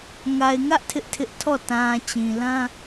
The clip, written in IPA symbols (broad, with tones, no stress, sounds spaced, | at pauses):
ŋ a˨ ɪ̯ ŋ ä˦ ʔ tʰ ɪ˦ ʔ tʰ ɪ˦ ʔ tʰ ɔ˦˨ t ã˨ t͡ɕ ĩ˨ l ã˦